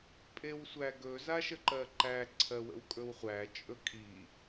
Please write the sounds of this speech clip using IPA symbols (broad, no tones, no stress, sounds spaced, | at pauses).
pʼ e w sʷ æ ɡ ɵ z a ʃ ə ǃ ɜ ǃ æ ǀʰ ɜ w ə̰ w kʼ ɵ w χʷ æ t͡ʃʼ ɵ kʼ i